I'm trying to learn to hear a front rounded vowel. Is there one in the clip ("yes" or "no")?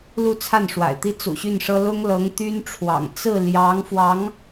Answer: yes